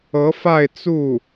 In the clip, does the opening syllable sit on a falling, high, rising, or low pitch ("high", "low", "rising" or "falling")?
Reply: rising